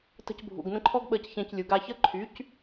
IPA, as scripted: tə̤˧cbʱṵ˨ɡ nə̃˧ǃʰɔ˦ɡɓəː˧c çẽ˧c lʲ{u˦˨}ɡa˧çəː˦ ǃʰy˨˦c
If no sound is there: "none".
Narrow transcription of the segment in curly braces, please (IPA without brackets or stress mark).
u˨